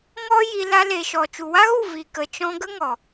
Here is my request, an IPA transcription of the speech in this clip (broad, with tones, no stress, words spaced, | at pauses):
ŋɔ˦ ji˧ la˧le˨ʃɔ˨ t͡ʃu˨wa˦ɣu˦˨ vi˨ kə˨t͡ʃɔ̃˧ɡə˦ ŋɔ˨